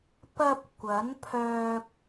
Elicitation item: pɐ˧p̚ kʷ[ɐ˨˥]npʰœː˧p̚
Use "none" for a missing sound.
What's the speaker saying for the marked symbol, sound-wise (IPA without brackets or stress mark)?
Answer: ɐ˨˥